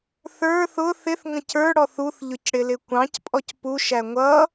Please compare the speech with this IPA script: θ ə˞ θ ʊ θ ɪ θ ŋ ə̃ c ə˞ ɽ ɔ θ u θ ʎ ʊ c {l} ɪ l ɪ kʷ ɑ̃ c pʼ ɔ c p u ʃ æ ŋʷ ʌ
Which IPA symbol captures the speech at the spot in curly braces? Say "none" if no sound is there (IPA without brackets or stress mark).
ɽ